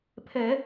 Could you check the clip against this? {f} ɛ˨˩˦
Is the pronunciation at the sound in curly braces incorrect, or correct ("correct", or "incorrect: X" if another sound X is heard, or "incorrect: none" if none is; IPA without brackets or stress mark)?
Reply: incorrect: pʰ